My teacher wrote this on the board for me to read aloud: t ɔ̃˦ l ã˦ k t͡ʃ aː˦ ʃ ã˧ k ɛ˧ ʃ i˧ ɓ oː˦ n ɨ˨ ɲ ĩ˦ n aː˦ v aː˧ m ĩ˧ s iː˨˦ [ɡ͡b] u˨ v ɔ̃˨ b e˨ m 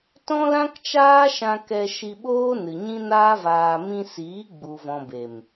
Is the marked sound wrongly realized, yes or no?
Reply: no